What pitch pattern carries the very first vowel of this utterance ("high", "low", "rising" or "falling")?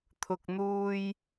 low